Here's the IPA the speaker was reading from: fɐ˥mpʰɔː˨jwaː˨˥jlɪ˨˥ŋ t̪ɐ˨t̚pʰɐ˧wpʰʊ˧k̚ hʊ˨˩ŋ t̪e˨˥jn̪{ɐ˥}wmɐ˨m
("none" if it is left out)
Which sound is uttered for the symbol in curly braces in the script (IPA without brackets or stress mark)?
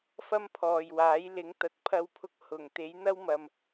ɐ˥